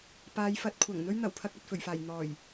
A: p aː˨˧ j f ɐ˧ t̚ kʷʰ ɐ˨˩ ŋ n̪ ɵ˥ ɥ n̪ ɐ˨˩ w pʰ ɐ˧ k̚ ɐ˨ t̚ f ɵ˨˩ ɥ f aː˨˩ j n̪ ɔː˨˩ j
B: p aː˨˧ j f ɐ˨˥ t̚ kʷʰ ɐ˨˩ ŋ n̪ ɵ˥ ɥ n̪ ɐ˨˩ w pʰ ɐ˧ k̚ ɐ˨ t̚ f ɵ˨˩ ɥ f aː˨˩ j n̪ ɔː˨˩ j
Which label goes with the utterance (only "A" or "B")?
B